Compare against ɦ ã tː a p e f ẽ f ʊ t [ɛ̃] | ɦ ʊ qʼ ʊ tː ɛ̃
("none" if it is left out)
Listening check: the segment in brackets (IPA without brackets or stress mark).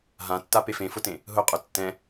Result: ẽ